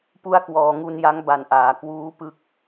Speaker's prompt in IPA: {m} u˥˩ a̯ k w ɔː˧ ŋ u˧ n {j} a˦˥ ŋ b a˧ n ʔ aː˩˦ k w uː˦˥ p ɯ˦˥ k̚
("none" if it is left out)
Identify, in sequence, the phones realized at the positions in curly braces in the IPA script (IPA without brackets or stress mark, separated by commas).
p, j